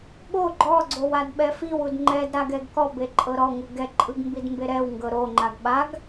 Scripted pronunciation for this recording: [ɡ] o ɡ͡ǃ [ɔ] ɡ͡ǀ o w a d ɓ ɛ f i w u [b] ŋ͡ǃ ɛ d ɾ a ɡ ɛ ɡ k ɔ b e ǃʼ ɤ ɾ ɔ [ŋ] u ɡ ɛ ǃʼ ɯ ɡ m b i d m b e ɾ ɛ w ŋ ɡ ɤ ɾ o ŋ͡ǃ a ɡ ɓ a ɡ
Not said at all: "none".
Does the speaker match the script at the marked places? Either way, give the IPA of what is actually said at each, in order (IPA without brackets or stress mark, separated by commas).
ɓ, ɔ, d, ŋ